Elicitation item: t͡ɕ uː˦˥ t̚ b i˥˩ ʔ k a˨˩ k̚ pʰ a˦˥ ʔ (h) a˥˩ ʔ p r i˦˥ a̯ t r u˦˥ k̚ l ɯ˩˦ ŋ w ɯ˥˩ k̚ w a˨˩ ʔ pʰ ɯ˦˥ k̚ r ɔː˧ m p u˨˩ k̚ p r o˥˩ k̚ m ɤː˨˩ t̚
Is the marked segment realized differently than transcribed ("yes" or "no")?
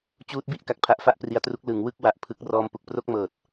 yes